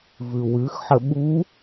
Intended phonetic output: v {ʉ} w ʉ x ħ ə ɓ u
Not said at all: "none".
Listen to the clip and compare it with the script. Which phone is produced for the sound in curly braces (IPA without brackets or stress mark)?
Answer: ʉ